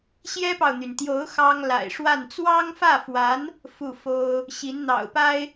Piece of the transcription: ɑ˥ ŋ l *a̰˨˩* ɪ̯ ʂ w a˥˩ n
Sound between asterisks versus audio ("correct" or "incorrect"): correct